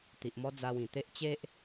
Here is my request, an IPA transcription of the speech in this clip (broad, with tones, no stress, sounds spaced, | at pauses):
t̪ i˨ ʔ m ɔ˧ d͡z a˧ w ĩ˨˩ t̪ e˦ ʔ t͡ɕ e˦ ʔ